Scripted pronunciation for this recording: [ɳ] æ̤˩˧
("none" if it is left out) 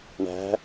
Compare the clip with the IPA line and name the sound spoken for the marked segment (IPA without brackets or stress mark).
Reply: ɳ